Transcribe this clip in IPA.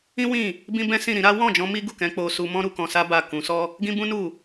ĩ˦ w ĩ˦˨ | b ĩ˦ b ɛ̃˦ s ĩ˦˨ ɾ ĩ˨˦ ɾ a˦ w ɔ̃˦˨ d͡ʒ ɔ̃˧ m i˦ ɡ u˦˨ k ɛ̃˨˦ k͡p o˧ s u˧ m ɔ̃˦ ɾ u˧ k ɔ̃˧ s a˦ b a˦˨ k ũ˨˦ s ɔ˦ | ɡ ĩ˦ b ũ˦ n u˦˨

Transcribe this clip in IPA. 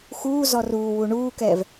x uː z ɔ r uː w u ɳ uː k ɛː v

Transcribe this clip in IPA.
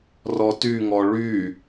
r ɔ t y ŋ ɔ ɭ y

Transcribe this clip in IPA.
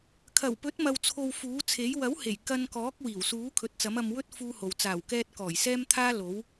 kʰ ɐ˨˩ w p ɵ˨˥ t̚ m ɐ˨ w t͡sʰ o˨ w f uː˨˥ t͡sʰ e˨˥ j w ɐ˨˥ w h e˨˩ j k ɐ˧ n k ɔː˨˥ k̚ w iː˨˩ w s uː˨˥ kʰ ɵ˨˥ t̚ t͡s ɐ˨˥ m ɐ˧ m w ɵ˥ t̚ f uː˥ h o˨ w t͡s aː˨˩ w k ɛː˧ t̚ k ɔː˨˩ j s ɛː˥ m t̪ʰ aː˥ l o˨˥ w

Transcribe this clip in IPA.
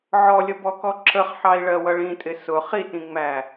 ʕ ɔ lʲ ə b ɔ k ɔ ǁ ə χ ħ ɑ i̯ ɭ ɜ w ʌ ɭ ĩ tʼ ɪ s ʊ χ i t ĩ ŋ͡m æ

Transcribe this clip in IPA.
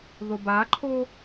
ð o b a ǃʰ o

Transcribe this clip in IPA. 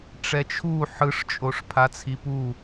ʈ͡ʂ ɛ t͡ʃʰ u ħ ɯ ʂ t͡ʃʼ o ʂ pʰ a t͡sʰ i p u

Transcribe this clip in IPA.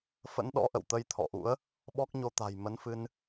f ə̰˧˥ n ɗ ɔ̰˧˥ ʔ ə̰˧˨ w t̪ ə˧ j t̪ʰ ɔ̰˧˨ ʔ ṵ˧˥ ə̯ | ɓ ɔ˦˥ k̚ ɲ o˧ t̪ a̤˨˩ j m ə˨˦ n f ɨ˧ n

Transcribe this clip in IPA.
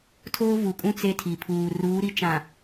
tʰ oː˦ v u˨ kʼ ũ˦ t͡s e˦ tʰ i˨ pʰ uː˨ r uː˨˦ ɾ i˦ t͡ʃ ã˨

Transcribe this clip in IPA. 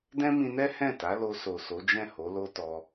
d ɛ̃˦ m ĩ˧ n ɛ˦ h ɛ̃˦˨ t a˨˦ l o˧ s o˨ s o˨˦ d͡ʒ ɛ̃˦˨ h o˨˦ l o˦ t ɔ˧

